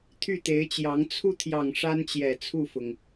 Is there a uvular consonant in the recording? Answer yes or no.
no